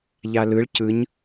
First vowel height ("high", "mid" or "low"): low